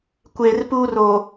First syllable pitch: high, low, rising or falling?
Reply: low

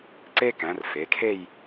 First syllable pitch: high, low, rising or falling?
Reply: high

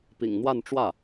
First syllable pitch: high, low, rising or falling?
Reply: low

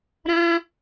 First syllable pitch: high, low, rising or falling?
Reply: high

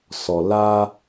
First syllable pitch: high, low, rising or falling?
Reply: low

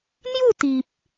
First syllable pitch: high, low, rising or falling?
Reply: falling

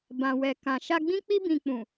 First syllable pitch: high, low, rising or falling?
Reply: low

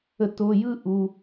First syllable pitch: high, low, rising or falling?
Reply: low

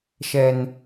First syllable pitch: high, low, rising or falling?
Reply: high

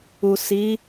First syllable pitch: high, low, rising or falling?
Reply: low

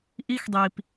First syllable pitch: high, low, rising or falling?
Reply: high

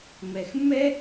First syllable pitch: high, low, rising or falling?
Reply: low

